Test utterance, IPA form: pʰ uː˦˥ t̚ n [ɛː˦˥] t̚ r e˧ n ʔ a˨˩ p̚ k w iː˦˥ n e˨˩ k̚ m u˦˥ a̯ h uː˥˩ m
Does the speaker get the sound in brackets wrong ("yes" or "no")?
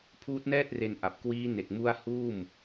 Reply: yes